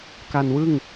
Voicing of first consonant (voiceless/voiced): voiceless